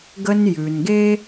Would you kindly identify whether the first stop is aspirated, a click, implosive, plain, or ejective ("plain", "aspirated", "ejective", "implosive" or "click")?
plain